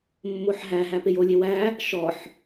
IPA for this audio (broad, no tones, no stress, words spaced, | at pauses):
mːoħɦæ ɦæpejolʲe wæ | ʃɔħ